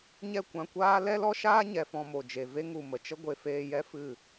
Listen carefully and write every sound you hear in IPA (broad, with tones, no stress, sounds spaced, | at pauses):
ɲ ɛ˦˨ kʷ ã˧ kʷ aː˦ l ɛ˦ l ɔ˦ ʃ aː˦ ɲ ɛ˨ f ɔ̃˧ m o˨ d͡ʒ e˨ v e˦ ŋ u˨ m ə˨ t͡ʃ ə˦ ɡʷ e˨ f eː˧ j ɛ˦ f ɨ˦˨